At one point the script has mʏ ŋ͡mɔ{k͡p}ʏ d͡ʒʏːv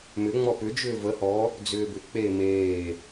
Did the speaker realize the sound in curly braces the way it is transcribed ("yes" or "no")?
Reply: no